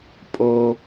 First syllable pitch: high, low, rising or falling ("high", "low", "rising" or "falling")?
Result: low